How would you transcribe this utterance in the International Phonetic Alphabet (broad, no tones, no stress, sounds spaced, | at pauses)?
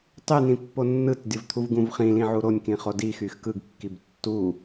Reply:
tˤ y n̪ ĩ pː o nː ɯ t dʲ o v t̪ʰ u v ɡ ũ v χ ĩ l ĩ ʕ u ɾ o nʲ k ĩ χ o d i x y x k ɯ ɡ kː i b tː u